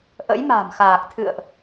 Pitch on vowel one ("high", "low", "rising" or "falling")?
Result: rising